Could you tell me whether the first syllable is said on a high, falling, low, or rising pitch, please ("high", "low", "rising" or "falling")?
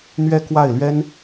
falling